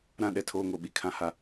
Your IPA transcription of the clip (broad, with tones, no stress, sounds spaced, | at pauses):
ɾ ã˦ ɗ ɛ˨ tʰ oː˦ ŋ o˨ ɓ i˦ kʰ ã˦ h a˦